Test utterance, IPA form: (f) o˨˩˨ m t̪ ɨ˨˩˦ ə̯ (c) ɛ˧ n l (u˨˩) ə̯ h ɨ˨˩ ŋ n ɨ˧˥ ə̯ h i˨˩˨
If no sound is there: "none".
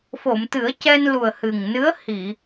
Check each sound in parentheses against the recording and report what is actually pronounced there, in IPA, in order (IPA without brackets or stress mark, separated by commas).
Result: f, c, u˨˩